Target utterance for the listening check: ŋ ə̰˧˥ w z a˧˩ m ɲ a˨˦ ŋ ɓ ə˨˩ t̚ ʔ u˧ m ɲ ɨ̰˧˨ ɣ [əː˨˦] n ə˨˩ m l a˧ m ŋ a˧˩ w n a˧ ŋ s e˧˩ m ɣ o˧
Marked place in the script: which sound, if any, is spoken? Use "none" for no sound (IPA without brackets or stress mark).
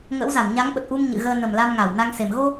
əː˧